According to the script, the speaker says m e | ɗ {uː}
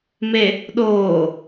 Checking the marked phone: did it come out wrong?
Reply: yes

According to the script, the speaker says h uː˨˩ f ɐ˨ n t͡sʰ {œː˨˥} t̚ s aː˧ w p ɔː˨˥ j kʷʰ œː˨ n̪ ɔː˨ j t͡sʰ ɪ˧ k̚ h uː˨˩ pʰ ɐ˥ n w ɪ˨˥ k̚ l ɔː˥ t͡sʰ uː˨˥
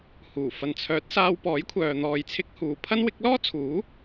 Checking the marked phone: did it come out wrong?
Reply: no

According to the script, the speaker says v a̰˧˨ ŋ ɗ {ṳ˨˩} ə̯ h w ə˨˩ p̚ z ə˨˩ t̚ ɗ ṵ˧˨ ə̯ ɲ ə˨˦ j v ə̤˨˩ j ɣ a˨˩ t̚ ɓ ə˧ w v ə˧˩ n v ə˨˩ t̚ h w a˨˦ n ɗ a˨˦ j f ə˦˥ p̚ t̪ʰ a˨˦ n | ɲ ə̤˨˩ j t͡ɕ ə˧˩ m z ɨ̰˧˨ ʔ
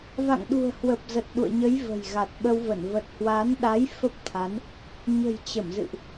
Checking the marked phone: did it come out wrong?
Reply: no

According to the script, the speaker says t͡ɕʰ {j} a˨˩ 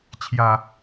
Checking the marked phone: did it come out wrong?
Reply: no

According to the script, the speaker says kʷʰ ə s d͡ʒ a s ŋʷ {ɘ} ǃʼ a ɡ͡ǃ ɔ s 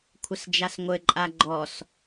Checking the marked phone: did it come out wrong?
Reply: no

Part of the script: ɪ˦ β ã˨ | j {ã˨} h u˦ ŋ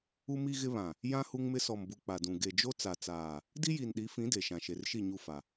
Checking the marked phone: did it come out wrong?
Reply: yes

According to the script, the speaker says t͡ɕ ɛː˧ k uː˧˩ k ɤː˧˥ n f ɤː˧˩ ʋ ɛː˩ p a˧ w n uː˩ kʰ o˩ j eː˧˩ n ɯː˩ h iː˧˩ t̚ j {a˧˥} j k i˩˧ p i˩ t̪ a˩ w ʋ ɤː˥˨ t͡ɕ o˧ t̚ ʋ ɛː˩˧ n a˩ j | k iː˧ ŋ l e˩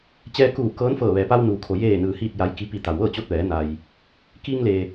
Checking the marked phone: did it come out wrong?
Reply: yes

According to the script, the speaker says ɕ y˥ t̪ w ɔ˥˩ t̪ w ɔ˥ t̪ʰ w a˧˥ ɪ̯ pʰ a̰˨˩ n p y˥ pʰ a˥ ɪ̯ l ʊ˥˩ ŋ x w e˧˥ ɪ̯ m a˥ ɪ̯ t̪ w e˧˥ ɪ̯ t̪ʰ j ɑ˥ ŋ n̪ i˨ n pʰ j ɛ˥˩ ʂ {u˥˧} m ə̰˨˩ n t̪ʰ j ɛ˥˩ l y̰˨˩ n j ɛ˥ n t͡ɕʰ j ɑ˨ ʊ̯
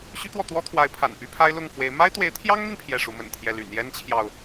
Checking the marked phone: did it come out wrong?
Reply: yes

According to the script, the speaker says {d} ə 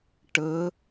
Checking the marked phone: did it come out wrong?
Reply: yes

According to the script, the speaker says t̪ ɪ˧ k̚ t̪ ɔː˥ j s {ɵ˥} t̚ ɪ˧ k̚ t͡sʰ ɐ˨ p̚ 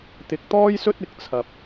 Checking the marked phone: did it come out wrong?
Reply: no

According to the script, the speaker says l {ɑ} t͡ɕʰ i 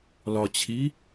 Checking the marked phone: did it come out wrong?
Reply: yes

